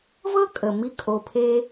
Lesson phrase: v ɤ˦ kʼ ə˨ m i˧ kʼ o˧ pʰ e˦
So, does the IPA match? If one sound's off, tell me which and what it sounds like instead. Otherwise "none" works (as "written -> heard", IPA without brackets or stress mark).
none